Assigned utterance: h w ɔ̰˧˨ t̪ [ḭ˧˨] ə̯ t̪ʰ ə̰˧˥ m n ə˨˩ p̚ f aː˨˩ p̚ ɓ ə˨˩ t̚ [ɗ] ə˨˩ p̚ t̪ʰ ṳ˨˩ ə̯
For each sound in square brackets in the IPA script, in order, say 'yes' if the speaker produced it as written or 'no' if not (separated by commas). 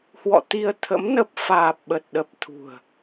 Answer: no, yes